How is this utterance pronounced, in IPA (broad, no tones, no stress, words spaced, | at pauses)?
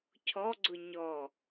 cʰɔɡ͡ǀʊ ɲɔ